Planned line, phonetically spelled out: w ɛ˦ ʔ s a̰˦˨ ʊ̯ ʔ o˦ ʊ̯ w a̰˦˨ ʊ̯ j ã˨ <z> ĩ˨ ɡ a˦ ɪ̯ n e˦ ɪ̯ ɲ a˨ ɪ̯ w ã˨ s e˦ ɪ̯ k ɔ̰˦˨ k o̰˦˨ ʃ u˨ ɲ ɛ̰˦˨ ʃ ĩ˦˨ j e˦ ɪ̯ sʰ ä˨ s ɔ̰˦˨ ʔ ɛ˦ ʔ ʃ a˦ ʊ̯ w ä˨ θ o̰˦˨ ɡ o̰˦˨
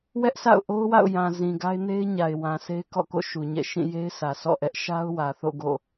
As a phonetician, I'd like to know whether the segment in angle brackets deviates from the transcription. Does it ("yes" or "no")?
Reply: no